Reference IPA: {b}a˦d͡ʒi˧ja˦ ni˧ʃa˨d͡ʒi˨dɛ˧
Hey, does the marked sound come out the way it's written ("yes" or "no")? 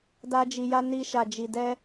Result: no